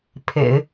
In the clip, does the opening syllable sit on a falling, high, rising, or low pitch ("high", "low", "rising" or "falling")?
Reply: low